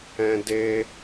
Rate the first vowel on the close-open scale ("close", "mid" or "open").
mid